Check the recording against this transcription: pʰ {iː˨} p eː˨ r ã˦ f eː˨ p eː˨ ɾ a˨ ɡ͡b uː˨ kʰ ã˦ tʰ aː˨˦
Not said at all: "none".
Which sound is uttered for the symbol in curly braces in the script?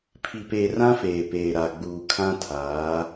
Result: i˨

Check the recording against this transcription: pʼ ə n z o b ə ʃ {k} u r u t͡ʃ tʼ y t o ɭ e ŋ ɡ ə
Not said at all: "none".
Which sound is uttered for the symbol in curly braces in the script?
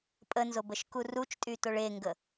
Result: k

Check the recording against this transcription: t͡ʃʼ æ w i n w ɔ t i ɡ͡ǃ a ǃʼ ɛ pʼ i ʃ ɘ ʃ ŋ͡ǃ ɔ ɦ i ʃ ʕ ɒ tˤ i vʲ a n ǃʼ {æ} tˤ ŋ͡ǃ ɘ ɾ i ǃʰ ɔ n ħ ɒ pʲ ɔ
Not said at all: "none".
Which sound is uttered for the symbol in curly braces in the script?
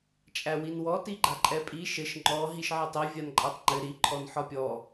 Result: a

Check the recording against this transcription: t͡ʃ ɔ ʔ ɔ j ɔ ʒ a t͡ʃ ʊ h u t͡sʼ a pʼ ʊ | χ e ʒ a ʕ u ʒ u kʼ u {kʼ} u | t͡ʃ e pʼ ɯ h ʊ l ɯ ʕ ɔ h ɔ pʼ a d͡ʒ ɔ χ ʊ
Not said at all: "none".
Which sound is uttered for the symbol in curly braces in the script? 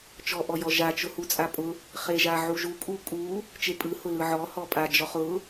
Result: kʼ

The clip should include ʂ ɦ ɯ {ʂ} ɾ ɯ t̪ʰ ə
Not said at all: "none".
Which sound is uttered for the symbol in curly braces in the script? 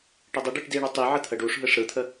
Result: ʂ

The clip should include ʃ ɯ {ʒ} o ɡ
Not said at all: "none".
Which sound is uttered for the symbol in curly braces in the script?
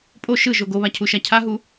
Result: ʒ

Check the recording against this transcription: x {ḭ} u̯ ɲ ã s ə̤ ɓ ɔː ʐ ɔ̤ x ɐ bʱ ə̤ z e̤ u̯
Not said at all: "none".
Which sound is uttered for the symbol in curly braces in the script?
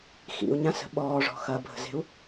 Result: ḭ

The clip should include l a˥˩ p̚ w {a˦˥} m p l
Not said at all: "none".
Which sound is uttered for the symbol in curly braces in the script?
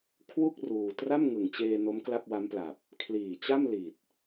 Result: a˦˥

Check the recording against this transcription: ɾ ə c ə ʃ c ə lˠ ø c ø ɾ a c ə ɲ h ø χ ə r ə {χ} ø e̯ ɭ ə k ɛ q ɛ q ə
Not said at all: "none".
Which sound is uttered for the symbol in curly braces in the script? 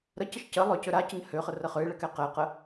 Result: χ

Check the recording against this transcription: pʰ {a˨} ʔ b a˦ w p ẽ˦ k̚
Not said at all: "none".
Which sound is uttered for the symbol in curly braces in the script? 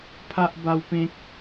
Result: a˦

